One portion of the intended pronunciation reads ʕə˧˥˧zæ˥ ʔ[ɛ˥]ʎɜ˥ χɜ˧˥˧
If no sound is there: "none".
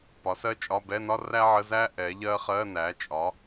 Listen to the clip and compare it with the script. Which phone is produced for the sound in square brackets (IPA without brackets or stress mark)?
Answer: ɛ˩˥